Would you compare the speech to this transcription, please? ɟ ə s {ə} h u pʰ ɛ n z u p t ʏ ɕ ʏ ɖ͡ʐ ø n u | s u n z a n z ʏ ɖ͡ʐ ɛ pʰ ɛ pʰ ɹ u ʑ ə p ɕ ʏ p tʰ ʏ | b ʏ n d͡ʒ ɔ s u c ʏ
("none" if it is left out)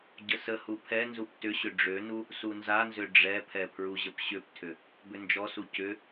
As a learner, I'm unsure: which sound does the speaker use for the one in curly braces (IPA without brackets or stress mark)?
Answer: ə